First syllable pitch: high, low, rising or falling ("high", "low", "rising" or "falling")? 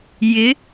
rising